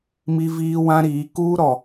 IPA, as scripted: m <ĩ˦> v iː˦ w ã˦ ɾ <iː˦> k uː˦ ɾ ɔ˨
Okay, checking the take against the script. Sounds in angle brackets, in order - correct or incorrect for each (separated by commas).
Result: incorrect, incorrect